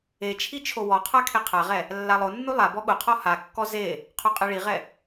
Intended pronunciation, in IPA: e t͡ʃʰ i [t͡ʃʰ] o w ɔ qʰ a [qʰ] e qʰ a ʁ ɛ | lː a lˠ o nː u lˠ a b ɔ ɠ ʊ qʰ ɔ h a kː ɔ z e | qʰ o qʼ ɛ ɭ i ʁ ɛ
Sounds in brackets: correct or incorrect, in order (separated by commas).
correct, incorrect